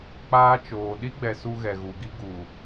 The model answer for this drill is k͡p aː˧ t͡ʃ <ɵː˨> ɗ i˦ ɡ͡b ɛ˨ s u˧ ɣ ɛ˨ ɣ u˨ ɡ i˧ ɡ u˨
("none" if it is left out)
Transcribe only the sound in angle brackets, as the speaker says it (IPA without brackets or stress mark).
oː˨